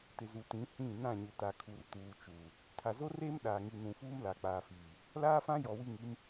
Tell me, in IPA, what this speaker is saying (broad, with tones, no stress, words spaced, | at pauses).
tɪ˨ zu˨tĩ˨˦ hĩ˦˨ nã˦˨ɲu˨ta˨ kʰu˨rtuː˨ t͡ʃu˨ | tʰa˨zo˦reː˦m ɗaː˨ŋi˨ nũ˨fuː˦m la˨k͡paː˨fiː˨ | laː˦fã˦jɔ˨ wi˦˨ŋi˦m